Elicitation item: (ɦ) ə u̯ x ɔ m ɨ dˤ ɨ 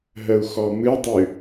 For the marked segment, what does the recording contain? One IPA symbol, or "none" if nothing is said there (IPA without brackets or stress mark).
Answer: ɦ